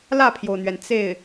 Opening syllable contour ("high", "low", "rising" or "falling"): falling